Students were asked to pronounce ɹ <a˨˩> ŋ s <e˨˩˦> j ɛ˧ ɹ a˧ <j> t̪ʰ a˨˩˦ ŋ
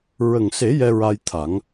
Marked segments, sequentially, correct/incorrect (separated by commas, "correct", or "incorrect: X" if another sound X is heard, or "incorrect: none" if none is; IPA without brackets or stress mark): incorrect: ə˨˩, correct, correct